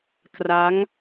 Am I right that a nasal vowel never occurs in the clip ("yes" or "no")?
yes